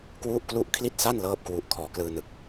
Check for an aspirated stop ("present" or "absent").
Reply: present